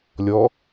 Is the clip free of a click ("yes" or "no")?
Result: yes